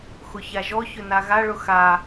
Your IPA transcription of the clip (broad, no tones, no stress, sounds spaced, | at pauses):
x ʊ ç a ʒ ɔ ç ʏ n a ɣ a ɭ ʊ x a